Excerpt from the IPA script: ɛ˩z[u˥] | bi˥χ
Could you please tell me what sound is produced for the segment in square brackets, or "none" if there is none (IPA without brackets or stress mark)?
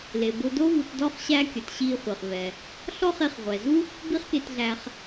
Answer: u˥